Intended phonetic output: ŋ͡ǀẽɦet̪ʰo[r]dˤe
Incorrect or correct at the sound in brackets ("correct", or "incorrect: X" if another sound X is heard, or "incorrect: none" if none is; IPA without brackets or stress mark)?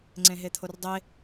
correct